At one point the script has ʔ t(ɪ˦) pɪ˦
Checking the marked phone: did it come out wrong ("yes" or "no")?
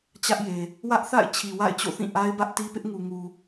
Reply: yes